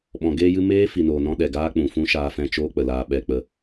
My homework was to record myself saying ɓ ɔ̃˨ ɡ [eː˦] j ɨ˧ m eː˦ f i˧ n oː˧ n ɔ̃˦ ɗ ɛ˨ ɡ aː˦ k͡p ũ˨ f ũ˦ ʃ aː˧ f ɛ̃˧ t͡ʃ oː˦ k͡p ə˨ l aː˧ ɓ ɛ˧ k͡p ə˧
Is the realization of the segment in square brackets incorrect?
yes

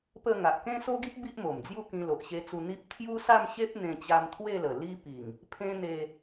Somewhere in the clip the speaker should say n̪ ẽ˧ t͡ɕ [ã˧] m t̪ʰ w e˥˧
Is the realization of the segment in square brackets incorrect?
yes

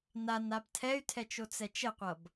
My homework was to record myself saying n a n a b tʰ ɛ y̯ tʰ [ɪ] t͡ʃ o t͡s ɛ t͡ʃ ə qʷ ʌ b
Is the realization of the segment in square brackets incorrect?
yes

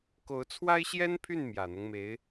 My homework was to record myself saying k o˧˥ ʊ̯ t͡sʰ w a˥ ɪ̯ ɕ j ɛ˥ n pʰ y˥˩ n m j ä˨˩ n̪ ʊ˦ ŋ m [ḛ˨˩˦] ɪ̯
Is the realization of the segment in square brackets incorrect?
yes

